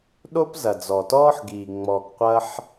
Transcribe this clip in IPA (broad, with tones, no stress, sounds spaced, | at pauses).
ɗ o˥ p z ɐ˨ d͡z ɔ˨ t ɔː˥ ħ ɡ iː˨ ŋ͡m ɔ˨ ɡ qʷ ɐ˥ ħ